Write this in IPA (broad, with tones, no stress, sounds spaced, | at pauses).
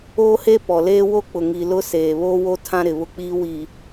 oː˦ h e˦ p ɔ˨ l eː˦ w o˦ k͡p ʊ˨ ŋ i˨ l ʊ˦ s eː˨ β oː˦ w o˦ tʰ ã˦ ɾ ɪ˨ β ʊ˦ k͡p iː˦ w i˨